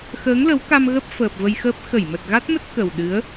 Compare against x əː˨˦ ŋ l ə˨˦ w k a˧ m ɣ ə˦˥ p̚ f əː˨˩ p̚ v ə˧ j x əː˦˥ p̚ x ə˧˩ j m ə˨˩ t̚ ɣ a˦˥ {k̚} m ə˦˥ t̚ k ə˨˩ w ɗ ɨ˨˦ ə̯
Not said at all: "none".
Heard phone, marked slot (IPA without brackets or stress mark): t̚